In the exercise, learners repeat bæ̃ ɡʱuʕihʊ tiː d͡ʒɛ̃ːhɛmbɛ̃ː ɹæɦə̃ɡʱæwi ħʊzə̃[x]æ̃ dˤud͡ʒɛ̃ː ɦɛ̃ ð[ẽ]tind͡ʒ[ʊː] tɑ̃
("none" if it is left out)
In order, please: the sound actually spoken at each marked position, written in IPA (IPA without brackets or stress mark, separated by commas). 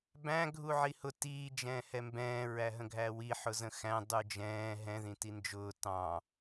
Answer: x, ĩ, ʊː